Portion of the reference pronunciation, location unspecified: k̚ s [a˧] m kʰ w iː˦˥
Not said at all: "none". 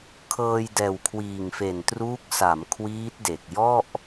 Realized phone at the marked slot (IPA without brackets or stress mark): a˩˦